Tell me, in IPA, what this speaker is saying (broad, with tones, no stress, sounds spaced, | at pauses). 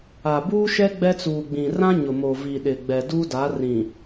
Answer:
a˨ b uː˦ ʃ ɛ˦ ɡ͡b ɛ˦ t͡s uː˨ ɡ͡b ĩ˨ r ã˦ ɲ ʊ˨ m o˨ v i˨ ɗ ɪ˨ ɡ͡b ɛ˨ d uː˦ d a˨˦ r ĩ˨